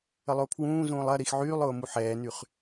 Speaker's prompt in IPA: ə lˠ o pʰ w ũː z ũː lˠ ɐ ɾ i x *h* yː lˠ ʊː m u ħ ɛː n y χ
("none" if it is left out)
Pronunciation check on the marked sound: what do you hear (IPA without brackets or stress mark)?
ʕ